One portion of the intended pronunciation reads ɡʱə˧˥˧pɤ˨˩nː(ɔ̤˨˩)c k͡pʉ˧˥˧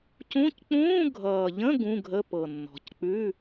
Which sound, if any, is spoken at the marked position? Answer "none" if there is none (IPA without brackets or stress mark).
ɔ̤˨˩